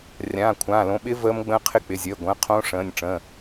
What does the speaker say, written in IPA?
rʲ ãː˩˧˩ kʷʰ ãː˩˧˩ l õ˩˧˩ ɓ ɪ˦˥ v əː˦˥ m ɡ͡b ə̃ː˦˥ qʰ ɪ˦˥ k͡p ɪ˩˧˩ zʲ əː˩˧˩ ɡʷ ə̃ː˩˧˩ qʰ õː˦˥ ʂ ə̃ː˩˧˩ nʲ ʈ͡ʂ ə̃˩˧˩

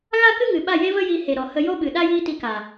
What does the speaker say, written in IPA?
ɣ a˦ k ɨ˦ ŋ ɨ˨ ɓ a˦˨ j e˦ v ə˦ j i˧ h e˨ ɾ ɔ˨ h ə˧ j o˦ ɓ ɨ˨ ɗ a˦ j i˧ t i˧ k a˨

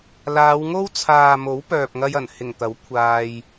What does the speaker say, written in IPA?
l aː˨˧ w ŋ o˥ w t͡sʰ aː˨ m o˨˥ w p œː˨ p̚ ŋ ɐ˧ j ɐ˨˩ n h ɪ˨˩ ŋ t̪ ɐ˨˥ w kʷʰ aː˧ j

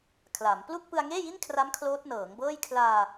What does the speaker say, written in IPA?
kʰ l a˩˦ m p l u˥˩ k̚ p ɯ˧ a̯ ŋ eː˥˩ j i˥˩ n kʰ r a˦˥ m kʰ l oː˦˥ t̚ n ɤː˩˦ ŋ b ɤː˥˩ j kʰ l aː˧

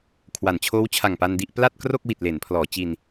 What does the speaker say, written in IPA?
kʰ w a˩˦ n t͡ɕʰ oː˦˥ w t͡ɕʰ a˨˩ ŋ p a˧ n d i˥˩ ʔ p l a˥˩ t̚ k r o˥˩ k̚ w i˨˩ t̚ l e˩˦ n pʰ l ɔː˩˦ t͡ɕ i˧ n

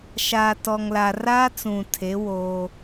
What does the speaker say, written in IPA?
ʃ aː˨ t ɔ˨ ŋ l a˨ r aː˦ t͡s ũ˨ tʰ e˨˦ w oː˦

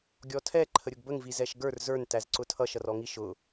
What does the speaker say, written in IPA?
ɡʲ ɔ tʰ ɛ ǃʰ ə ɾʲ ʊ ɡ b ə ŋ v i z ɛ ʃ ɡ ə˞ r z ə˞ n t æ z ǀ ʊ tʰ ʌ ʃ ʌ r ɔ ŋ i ʃ ʊ

